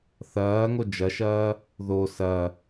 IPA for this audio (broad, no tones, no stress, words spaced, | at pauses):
θɐːŋo d͡ʒɐʃɐː | ðo sɐ